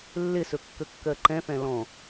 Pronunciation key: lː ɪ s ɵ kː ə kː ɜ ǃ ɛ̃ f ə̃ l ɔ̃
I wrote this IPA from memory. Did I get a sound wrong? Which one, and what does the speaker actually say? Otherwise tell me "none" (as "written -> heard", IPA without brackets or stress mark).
ə̃ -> ɛ̃